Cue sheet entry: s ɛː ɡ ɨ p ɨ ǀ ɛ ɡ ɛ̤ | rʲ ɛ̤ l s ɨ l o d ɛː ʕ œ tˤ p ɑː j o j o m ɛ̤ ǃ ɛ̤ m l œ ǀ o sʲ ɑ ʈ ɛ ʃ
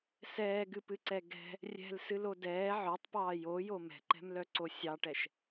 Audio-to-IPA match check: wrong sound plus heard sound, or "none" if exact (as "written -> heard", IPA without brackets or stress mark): none